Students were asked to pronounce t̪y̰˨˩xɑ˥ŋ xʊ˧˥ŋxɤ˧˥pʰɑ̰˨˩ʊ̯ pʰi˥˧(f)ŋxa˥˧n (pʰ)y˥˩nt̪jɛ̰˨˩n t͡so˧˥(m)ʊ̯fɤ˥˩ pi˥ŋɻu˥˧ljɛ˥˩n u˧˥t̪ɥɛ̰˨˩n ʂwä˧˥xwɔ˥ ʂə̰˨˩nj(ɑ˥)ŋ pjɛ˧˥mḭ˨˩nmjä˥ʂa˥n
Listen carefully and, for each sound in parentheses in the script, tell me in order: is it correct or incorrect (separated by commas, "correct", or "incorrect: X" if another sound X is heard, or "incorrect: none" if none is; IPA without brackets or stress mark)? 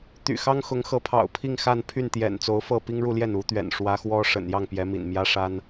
incorrect: none, correct, incorrect: none, incorrect: ɑ˥˩